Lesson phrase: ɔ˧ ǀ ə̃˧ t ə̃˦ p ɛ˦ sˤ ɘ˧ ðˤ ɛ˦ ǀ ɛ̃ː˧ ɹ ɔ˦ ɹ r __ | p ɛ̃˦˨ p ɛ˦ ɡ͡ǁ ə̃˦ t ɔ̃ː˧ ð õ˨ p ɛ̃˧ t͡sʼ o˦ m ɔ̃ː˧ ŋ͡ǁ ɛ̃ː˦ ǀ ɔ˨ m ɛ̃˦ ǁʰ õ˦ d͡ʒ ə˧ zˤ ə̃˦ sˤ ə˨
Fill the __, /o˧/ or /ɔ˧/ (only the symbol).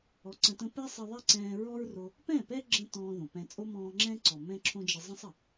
o˧